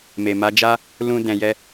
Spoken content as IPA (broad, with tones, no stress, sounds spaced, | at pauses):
m e˨ m a˨˦ d͡ʒ a˦ | l ũ˧ d ɛ̃˨ j ɛ˧